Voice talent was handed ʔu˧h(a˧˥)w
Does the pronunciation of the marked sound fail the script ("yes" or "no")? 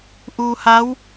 no